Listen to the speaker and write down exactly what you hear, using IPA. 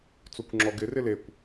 t͡s o kʷ ŋ͡ǁ ɔ ɡ ɪ r ɪ l e kʷ

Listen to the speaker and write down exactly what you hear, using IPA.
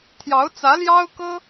t̪ʰ j ɑ˧˥ ʊ̯ t͡s ä˧˥ l j ɑ˥ ʊ̯ k ɤ˥

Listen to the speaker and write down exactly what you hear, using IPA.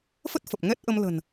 f ə˦˥ t̚ f ə˨˩ p̚ ŋ ɛ˦˥ t̚ ʔ ə˧ m l ə̤˨˩ n

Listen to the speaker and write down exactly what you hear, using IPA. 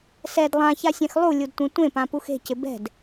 s ɛ d lˠ ã ç a sʲ ɛ̃ x lˠ u lʲ u d tʷ ẽ tʷ ẽ p ã p u x e̤ c ɪ b ɛ̤ d

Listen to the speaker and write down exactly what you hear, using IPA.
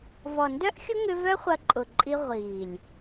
v ɔ˨ n d œ˦ ʔ xʲ ʊ˦ ŋ ʏ˧ v œ˦ χʷ ɐ˧ ǃʼ ʊ˨ ǃʼ i˧ ʁʷ iː˨ lʲ

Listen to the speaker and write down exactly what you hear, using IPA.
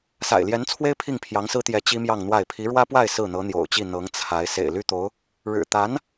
s a̰˨˩ ɪ̯ l j ɛ˧˥ n t͡sʰ w e˥ ɪ̯ pʰ i˥˩ ŋ pʰ j ɑ˧˥ ŋ s ɹ̩˥ t̪ j ɛ˧˥ t͡ɕ i˥ m j ɑ˥˧ ŋ n̪ w a˥˩ ɪ̯ pʰ i˧˥ ɻ w ä˥ p w a˥˧ ɪ̯ s ɹ̩˥˩ n̪ ɤ˧˥ n̪ j o̰˨˩ ʊ̯ t͡ɕ i˥˩ n̪ ɤ˧˥ ŋ t͡sʰ a˧˥ ɪ̯ s ḛ˨˩ ɪ̯ l y˥ t̪ o˧˥ ʊ̯ | ɻ ɻ̩˨˩ t̪ a˧˥ n

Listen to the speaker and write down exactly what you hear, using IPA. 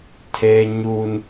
tʰ eː˦ ɲ uː˦ n

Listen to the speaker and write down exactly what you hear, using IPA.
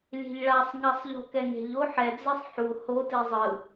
lʲ e̤ ʎ ɭ a sˤ ŋ a sˤ ʎ o̤ k ɛ ŋ e̤ ʎ o ħ ɛ d͡z e sˤ ħ u h o t i zˤ ɯ

